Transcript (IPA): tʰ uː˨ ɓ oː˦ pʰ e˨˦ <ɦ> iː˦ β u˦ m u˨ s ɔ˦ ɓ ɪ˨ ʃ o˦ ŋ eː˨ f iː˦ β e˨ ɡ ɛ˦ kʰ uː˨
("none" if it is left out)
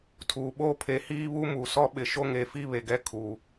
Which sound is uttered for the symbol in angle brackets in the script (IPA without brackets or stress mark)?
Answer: h